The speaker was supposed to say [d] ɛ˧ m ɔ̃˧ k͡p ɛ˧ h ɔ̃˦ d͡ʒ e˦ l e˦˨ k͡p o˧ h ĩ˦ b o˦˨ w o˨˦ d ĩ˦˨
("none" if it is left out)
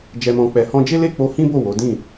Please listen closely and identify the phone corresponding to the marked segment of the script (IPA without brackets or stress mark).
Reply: d͡ʒ